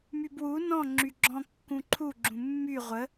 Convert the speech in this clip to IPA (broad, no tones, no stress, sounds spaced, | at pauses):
m y b w u n ɔ̃ ŋ͡ǁ y ɡ͡ǁ ɔ̃ kː ũ ǃʰ u ɡ͡ǁ ũ mː y ʁʷ ə